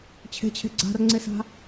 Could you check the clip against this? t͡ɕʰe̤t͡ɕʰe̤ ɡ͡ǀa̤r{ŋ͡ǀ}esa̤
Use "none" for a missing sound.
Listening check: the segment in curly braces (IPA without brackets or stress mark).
ŋ͡ǀ